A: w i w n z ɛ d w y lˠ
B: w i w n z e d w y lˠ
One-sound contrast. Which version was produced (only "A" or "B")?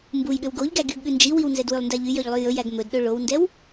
A